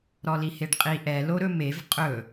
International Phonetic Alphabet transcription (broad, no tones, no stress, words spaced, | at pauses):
ɾɔliheɖqʼi ʔɛ loɾɵmev qʼɵ